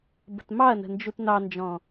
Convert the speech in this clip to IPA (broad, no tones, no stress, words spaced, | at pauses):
bə̤tmɑɐ̯nə̤ nd͡ʒutnɑnd͡ʒɔ̃